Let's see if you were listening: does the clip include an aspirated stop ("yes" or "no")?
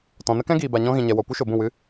no